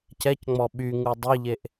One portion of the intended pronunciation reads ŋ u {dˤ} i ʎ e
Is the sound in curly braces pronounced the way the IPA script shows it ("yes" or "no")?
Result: yes